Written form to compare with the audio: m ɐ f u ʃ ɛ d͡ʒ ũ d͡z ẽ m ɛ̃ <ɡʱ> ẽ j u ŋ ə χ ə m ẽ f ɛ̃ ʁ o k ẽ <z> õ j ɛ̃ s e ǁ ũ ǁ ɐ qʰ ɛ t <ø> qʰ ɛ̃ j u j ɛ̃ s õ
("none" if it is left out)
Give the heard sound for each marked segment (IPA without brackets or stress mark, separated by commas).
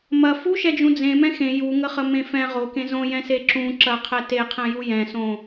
x, z, e